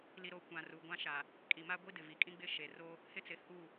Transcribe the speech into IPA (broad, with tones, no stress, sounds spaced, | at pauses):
l i˨ ɾ o˨ kʷ ã˨ r u˨ ɡʷ ã˦ ʃ a˨ | kʼ i˨ m a˦ ɡʷ i˦ d ɪ˨ v i˨ kʼ ĩ˦ ɡ͡b ɪ˦ ʃ e˨ r o˦ | h ɪ˦ t͡s ɪ˨ h u˦˨